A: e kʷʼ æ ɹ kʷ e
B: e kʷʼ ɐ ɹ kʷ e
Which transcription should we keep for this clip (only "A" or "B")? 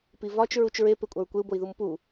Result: A